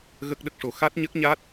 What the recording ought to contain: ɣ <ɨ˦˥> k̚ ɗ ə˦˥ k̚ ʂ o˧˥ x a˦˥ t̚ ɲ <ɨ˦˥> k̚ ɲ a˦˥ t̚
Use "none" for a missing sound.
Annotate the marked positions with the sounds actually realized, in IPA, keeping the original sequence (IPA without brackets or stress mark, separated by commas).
ə˦˥, ə˦˥